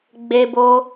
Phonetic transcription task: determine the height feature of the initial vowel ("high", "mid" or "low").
mid